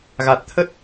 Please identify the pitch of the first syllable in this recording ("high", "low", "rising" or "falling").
low